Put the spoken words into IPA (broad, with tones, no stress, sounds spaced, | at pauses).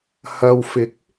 h ɐ˨ w f ɪ˨˥ k̚